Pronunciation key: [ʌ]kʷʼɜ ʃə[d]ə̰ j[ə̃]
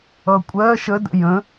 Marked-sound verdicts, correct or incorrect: correct, correct, correct

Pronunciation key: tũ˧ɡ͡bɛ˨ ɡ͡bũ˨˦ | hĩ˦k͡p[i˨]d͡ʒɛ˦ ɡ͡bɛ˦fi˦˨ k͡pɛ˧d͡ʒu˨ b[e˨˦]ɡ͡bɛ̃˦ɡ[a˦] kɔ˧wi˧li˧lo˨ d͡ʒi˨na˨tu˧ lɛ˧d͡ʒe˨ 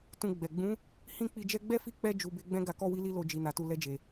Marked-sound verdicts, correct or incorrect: incorrect: i˧, correct, incorrect: a˧

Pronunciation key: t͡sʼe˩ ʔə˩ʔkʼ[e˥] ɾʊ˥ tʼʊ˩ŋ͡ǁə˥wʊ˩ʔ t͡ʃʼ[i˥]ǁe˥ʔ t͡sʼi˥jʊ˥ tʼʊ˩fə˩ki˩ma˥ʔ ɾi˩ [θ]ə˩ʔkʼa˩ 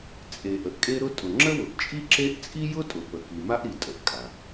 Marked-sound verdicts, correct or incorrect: correct, correct, incorrect: tʼ

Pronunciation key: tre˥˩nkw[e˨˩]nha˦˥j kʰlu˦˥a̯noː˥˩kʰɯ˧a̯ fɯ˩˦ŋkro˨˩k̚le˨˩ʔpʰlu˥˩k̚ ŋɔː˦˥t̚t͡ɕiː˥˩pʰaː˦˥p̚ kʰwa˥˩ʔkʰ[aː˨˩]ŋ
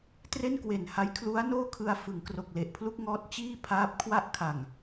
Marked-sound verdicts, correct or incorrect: correct, incorrect: a˨˩

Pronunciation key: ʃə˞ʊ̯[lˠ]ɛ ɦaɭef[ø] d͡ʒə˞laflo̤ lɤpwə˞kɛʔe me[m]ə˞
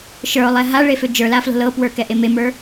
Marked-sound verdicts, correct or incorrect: correct, correct, correct

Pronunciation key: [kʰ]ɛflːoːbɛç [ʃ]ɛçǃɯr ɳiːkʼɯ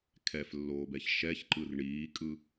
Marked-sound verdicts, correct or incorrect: correct, correct

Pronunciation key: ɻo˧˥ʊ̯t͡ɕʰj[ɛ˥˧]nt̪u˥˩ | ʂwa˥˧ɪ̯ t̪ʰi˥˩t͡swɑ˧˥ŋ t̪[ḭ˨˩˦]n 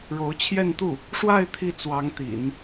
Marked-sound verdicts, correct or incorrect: correct, correct

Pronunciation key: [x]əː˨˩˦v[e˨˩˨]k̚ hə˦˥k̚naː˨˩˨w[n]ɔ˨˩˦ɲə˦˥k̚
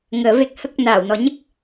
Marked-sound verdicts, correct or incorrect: incorrect: ŋ, incorrect: e˨˩, correct

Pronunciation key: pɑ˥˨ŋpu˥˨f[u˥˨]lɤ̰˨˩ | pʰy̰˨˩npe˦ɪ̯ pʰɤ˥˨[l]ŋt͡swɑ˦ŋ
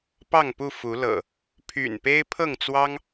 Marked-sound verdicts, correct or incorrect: incorrect: u˨˦, incorrect: none

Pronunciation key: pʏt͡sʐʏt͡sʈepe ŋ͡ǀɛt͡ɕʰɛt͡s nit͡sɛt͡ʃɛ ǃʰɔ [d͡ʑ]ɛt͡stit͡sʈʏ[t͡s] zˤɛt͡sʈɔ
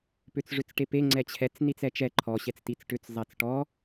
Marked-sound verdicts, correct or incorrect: incorrect: ɕ, correct

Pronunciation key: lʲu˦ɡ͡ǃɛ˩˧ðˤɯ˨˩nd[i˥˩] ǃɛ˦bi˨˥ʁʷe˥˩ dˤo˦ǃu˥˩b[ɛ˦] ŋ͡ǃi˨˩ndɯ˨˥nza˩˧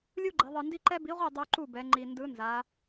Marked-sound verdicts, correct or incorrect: incorrect: i˦, incorrect: ɛ˩˧

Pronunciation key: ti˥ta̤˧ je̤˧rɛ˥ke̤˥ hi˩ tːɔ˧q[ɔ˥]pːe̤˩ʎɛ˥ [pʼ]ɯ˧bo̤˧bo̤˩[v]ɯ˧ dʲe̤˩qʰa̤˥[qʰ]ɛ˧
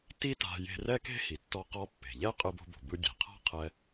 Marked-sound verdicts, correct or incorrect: incorrect: ɔ˧, incorrect: qʼ, incorrect: b, correct

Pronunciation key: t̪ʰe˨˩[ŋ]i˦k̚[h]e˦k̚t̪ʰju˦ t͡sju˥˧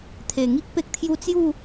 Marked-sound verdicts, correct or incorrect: correct, incorrect: p

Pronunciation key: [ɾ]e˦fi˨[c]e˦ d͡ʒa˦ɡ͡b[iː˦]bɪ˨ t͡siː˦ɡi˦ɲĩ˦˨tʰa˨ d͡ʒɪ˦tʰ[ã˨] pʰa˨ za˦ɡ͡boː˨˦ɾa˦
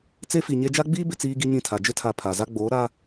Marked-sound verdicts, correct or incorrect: incorrect: t͡s, incorrect: ɲ, correct, incorrect: a˨

